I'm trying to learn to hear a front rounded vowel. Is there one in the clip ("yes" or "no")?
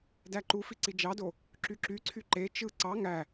yes